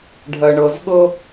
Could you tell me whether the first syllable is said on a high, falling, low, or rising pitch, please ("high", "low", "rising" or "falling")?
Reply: low